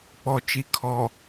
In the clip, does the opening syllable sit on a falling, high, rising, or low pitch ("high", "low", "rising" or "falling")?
low